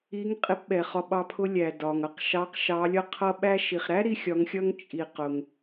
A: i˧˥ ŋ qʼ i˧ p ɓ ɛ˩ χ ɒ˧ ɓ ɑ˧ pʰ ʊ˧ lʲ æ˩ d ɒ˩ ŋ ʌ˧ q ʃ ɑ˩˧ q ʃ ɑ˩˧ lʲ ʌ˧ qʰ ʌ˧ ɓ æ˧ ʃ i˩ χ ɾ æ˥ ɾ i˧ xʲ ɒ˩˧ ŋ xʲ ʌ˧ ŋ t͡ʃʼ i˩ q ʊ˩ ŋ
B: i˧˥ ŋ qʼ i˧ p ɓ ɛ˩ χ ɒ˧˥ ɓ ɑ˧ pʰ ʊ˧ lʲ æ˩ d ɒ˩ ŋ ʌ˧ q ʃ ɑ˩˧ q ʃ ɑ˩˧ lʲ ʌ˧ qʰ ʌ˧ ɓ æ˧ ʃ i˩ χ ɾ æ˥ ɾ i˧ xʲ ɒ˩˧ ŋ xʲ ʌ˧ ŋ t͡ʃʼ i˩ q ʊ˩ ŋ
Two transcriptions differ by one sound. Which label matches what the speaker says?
A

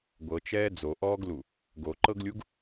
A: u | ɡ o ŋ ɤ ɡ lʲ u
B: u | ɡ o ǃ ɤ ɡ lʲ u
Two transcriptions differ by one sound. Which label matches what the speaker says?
B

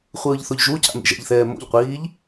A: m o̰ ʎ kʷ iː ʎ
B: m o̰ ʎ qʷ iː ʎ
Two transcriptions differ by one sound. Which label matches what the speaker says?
B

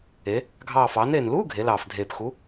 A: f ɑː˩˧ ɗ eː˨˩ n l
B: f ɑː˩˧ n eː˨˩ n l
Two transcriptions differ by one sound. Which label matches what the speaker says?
B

